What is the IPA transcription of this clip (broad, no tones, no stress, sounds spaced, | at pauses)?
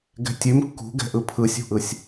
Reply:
ɡ ɛ̤ tʲ ʉ m kː ṳ ɡ ɛ̤ ʔ ɯ pʰ ɯ sʲ ṳ ʔ ɯ sʲ